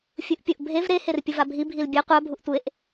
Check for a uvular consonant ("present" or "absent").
present